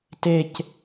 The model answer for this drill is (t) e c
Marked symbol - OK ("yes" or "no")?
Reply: yes